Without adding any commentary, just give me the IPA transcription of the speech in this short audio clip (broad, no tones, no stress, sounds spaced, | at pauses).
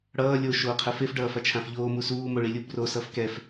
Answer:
ɽ ʌː lʲ o ʃ oː qʰ ɛ f e f ɖ ʌː f a t͡ʃʰ ã f ʎ oː m u s uː m o ɭ i lʲ u b r o s ʌː f k ɛ f